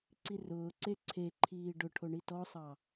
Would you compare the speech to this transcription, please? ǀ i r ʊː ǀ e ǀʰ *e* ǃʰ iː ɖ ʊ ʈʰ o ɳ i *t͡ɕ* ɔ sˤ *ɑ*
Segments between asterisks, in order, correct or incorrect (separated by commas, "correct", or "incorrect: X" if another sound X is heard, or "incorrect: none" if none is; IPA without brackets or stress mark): correct, incorrect: t, correct